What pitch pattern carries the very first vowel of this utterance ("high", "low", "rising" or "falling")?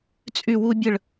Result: falling